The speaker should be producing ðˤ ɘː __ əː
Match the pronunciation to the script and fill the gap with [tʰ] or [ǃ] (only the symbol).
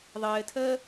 tʰ